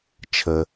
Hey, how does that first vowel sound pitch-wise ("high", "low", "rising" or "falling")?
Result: low